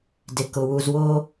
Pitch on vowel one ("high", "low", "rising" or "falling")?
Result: low